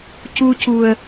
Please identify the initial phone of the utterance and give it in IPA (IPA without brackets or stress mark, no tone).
c